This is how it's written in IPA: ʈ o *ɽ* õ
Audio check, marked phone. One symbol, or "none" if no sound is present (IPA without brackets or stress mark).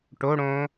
ɽ